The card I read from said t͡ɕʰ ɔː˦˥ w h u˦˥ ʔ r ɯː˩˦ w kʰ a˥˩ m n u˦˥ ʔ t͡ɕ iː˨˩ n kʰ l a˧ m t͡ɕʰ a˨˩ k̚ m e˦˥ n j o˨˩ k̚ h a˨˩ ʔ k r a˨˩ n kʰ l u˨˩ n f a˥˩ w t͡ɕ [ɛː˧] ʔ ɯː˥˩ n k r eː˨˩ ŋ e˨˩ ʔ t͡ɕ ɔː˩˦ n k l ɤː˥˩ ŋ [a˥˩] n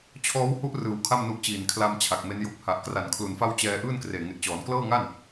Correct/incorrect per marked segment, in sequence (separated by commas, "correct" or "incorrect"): correct, correct